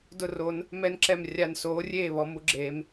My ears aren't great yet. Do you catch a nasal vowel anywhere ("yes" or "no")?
no